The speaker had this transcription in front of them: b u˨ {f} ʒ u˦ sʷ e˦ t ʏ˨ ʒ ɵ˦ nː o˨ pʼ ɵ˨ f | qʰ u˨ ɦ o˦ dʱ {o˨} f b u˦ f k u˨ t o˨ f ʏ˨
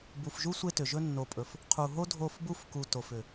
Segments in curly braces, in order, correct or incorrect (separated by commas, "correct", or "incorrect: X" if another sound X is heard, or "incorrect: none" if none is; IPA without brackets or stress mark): correct, incorrect: o˦˨